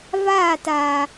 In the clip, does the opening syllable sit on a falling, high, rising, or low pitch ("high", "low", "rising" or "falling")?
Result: falling